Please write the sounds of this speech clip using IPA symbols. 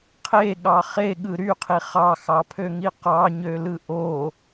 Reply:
qʰeɠɑ χeɠɯ ɾyqʰi χɑxɑpʰøŋi qɑɲølɯ ʔo

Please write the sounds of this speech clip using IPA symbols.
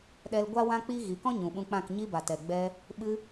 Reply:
ɗɛ˧l ɡʷa˦wã˦ k͡pi˦ ɣi˨˦kɔ̃˦ ɲũ˨ɓũ˧k͡pã˦˨k ɲi˧ba˨tɛ˨ɡ͡bɛ˧ | ɓɨ˧

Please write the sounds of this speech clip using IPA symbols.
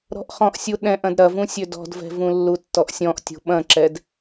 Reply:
ɾɔ̤ʔχɔ̃ʔsʲu ɗɛ̃ʔ ɐ̃dɾɐvũ sʲødɔ̤dvɛ̤ vũlːutːɔʔsʲɔ̃ʔ tʲṳɓɐ̃ǁɛd

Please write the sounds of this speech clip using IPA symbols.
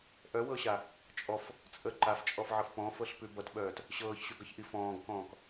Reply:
ʔœwɤɕa | t͡ʃʼɔf | t͡sʼə ǃaft͡ʃʼɔfʕɤf pɔ̃fɤɬpʉ bʌtɓœːt | ɕɤːçɕʉɡʌçʔi fɔ̃ːɡkɔ̃ːk

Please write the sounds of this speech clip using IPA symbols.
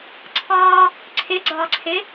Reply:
ǀʰɑ | ǀʰɪɡ͡ǀɑǀʰɪ

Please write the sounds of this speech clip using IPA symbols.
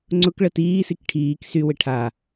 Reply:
ŋ͡ǀʊkɭə tiːsik ʈʰiːk sywɪ ʈʰa

